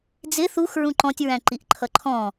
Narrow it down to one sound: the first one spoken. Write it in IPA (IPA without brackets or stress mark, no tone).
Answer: d͡z